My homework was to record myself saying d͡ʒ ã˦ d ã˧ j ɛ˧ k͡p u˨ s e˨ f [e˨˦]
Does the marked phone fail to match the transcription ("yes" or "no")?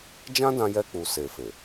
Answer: yes